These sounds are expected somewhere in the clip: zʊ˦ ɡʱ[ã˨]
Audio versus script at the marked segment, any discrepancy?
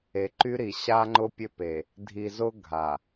yes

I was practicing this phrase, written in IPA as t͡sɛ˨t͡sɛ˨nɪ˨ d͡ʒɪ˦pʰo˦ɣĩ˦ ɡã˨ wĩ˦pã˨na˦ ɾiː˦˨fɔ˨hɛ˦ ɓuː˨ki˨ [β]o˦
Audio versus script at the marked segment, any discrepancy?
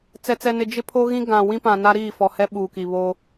no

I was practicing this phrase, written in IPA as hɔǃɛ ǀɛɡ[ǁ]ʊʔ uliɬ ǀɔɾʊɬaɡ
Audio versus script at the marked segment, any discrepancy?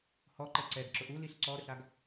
no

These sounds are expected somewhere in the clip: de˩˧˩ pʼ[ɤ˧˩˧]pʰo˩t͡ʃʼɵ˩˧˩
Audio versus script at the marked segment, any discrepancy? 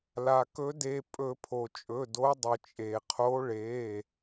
yes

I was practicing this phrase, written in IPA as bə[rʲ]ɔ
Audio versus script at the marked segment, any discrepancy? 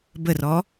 yes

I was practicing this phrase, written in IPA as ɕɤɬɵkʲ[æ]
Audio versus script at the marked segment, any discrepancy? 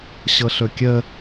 yes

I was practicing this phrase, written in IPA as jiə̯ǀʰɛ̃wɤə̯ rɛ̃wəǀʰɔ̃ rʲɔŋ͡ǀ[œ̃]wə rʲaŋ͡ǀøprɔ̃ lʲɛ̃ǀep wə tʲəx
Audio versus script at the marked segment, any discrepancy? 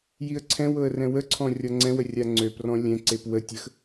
yes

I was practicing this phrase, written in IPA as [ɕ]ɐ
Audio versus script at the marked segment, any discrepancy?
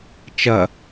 yes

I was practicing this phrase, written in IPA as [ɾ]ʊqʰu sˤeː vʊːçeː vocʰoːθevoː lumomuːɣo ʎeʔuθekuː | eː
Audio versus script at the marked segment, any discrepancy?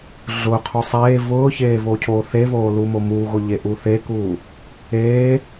yes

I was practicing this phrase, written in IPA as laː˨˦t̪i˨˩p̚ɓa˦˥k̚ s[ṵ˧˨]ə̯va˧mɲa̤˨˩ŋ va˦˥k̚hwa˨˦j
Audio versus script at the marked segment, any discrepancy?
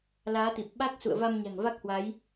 no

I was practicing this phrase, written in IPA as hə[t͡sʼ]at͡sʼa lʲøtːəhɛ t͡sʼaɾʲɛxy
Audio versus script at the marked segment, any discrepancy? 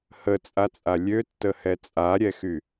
no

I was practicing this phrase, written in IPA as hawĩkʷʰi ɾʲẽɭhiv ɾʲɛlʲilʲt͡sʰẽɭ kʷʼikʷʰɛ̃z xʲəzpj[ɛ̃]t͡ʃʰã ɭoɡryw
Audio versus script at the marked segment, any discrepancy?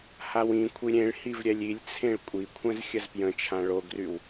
yes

